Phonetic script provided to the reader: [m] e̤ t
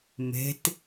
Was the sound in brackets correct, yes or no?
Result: yes